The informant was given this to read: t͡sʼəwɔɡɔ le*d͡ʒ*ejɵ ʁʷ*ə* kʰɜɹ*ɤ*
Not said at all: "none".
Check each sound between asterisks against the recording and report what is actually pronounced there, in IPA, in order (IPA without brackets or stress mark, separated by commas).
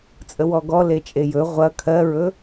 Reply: t͡ʃʼ, ɐ, ɵ